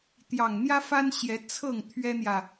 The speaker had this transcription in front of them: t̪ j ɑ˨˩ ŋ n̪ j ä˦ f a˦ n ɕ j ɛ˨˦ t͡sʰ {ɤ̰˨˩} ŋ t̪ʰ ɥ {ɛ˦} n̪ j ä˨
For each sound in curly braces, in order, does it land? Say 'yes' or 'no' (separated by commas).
no, yes